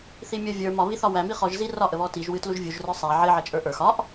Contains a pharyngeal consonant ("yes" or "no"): yes